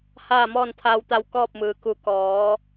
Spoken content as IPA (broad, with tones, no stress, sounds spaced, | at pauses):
h aː˥˨ m ɔː˥˨ n t̪ʰ aː˧ w t̪ a˧ w k ɔː˥˨ p̚ m ɯː˩ k u˧˩ k ɔː˩˧